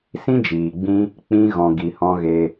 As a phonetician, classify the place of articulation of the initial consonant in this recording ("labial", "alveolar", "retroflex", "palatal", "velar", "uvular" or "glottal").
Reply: alveolar